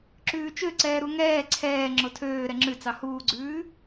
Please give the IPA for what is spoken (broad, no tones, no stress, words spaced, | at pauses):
ǁʉːt͡ʃøǀɛː ɾuŋɛː ǀʰɛː ŋ͡ǁotʰøː ɾɛŋ͡ǁʉt͡sɑ huːɡ͡ǀʉː